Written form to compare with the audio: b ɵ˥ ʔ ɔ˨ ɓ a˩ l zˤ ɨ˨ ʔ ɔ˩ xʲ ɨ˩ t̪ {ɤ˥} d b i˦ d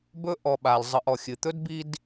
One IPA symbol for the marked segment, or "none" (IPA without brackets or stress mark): ɵ˥